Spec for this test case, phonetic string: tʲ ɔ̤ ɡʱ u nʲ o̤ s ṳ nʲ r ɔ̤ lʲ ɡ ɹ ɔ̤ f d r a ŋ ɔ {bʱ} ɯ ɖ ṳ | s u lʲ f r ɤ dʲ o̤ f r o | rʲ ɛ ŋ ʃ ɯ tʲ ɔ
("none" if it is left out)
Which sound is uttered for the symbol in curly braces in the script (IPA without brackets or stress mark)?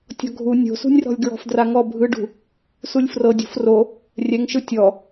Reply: bʱ